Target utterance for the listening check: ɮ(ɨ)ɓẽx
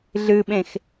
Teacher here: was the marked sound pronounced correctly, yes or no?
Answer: yes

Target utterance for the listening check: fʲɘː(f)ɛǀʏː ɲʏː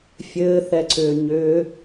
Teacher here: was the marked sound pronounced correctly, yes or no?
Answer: no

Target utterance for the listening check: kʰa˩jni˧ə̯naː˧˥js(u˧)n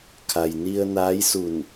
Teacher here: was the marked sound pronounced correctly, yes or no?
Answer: no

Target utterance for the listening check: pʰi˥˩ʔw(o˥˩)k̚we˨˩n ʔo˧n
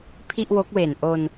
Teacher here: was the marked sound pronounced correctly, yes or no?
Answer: no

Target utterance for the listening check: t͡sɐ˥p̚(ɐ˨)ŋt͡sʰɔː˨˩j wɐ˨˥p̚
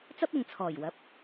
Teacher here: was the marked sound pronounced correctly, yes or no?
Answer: yes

